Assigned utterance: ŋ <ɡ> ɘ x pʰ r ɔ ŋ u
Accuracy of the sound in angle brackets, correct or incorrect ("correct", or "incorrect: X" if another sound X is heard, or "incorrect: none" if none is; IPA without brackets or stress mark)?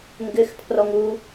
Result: correct